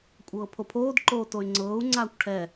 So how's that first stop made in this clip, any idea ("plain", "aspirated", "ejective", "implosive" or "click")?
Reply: ejective